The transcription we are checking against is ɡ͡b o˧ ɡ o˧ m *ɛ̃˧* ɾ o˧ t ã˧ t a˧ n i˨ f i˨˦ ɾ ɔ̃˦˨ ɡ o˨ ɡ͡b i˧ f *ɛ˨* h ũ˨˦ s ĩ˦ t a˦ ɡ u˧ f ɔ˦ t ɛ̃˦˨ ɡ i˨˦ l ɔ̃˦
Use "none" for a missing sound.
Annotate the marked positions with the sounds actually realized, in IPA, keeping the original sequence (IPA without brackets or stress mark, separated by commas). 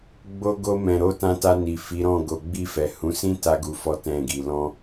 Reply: ɛ̃˨, ɛ˨